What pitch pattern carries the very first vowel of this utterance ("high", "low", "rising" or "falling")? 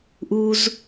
high